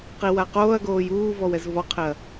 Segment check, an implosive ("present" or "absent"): absent